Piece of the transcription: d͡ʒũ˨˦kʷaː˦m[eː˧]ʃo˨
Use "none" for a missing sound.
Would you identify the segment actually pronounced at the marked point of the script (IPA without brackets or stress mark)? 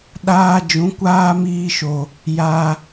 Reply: iː˧